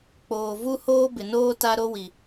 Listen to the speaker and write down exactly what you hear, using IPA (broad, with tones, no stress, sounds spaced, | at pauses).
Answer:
k͡p oː˨ v u˦ h oː˦ b ɪ˨ n oː˦ t a˦ ɾ o˦ w i˨